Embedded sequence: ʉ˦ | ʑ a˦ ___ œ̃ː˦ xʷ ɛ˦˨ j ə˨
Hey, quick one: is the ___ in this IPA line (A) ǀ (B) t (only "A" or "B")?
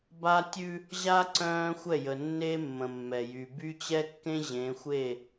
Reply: A